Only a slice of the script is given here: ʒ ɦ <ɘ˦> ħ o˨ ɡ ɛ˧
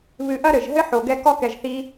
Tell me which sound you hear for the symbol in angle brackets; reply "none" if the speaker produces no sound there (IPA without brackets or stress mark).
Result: ɘ˦